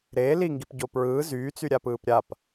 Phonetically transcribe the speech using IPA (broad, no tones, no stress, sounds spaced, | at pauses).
ɾ eː l i ŋ ɡ i p ɟ o p ɹ ɯː z yː t͡s y ɾʲ a p ɯː p ɾʲ a p